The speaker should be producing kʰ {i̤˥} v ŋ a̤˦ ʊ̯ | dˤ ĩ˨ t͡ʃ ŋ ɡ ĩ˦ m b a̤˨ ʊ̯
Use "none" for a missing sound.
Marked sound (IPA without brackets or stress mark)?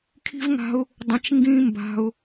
i̤˥